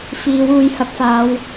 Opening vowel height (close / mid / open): close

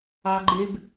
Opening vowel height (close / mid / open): open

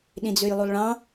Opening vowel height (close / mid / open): close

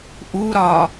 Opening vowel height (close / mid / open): close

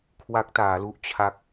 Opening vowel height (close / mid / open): open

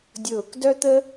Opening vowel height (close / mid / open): close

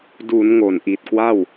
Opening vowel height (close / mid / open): close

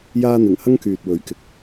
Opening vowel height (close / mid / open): open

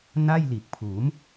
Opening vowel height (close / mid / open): open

